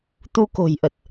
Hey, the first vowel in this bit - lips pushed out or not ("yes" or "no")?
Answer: yes